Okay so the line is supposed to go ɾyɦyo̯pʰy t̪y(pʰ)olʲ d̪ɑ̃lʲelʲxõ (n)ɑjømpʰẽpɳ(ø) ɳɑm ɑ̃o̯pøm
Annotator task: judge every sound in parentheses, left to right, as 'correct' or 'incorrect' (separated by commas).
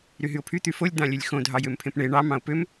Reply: incorrect, incorrect, incorrect